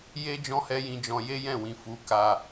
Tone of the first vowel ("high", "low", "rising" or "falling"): high